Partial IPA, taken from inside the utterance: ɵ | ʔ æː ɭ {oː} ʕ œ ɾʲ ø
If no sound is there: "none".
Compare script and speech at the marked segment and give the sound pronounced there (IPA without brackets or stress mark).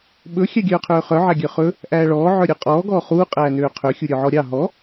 ɔː